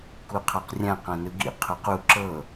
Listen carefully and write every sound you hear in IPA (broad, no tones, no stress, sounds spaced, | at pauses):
k u qʰ a q rʲ ã q ã n ɯ ɡ ḭ qʰ o q u ǁ ɤ